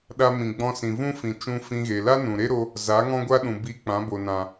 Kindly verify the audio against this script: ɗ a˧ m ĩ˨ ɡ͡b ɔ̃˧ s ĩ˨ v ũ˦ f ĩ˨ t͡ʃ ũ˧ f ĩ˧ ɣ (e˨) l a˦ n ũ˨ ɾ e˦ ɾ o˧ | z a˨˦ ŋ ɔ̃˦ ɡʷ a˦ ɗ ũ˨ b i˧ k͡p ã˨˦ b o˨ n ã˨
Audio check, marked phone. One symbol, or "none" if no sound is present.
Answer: e˨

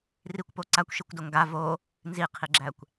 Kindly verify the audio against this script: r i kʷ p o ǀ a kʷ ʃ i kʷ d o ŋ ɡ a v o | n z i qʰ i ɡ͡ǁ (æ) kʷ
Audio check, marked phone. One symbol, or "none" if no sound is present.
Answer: æ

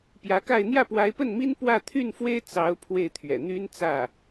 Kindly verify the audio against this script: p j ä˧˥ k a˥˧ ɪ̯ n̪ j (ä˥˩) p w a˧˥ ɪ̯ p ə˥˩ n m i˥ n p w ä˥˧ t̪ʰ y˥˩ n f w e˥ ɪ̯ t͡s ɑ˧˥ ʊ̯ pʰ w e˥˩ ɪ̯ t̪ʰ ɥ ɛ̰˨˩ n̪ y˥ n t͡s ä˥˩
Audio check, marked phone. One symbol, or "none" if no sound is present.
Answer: ä˥˩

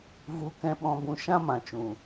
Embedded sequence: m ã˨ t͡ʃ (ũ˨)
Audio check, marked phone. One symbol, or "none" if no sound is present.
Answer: ũ˨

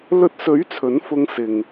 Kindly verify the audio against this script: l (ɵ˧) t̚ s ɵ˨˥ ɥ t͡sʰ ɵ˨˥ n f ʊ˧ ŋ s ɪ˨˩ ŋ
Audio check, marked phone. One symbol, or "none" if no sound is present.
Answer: ɵ˧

